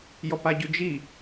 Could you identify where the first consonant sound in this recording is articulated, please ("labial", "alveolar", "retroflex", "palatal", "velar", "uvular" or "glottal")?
palatal